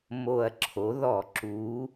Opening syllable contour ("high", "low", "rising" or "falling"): low